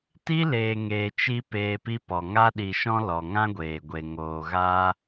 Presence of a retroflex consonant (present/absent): absent